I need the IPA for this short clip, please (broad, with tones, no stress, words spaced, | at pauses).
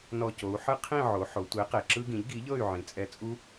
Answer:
nɔ˧˩co˩˧u̯ ħɯ˦qʰĩ˥˨ ʕo˩˧ħo˩˧ tʷe˩˥ qe˩ǁɯ˦ɡĩ˩˥ʎ ɡi˩˥ʎɤ˥˨y̯ ʕĩ˩˧t͡sʼɛ˦ t͡sʼu˦